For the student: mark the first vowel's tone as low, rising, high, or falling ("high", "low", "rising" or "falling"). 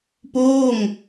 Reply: falling